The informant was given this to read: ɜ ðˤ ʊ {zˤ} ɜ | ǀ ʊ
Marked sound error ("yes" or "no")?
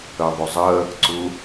no